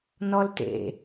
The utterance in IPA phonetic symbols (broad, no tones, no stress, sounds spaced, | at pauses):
n ɔ l t ḛ